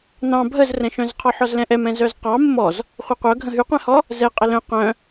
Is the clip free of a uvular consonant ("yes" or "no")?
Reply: no